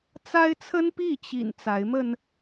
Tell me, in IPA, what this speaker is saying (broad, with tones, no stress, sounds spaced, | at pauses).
t͡s a˦ ɪ̯ t͡sʰ ə˦ n p i˥˨ t͡ɕ ḭ˨˩ n t͡s a˨˦ ɪ̯ m ə˧ n